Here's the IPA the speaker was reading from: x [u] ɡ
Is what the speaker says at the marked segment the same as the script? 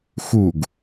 yes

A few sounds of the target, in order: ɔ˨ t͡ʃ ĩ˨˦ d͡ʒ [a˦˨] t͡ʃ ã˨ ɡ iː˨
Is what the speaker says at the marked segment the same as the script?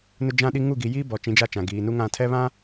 yes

